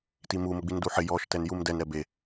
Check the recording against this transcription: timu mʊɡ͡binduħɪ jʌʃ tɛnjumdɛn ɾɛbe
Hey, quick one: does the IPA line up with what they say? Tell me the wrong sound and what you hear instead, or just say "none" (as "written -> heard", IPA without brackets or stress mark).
ʌ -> ɔ